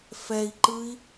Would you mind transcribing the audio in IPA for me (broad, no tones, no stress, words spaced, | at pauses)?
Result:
fɛi̯ǃɯi̯